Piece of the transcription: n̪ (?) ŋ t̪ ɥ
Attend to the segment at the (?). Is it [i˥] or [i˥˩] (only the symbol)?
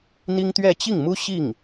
i˥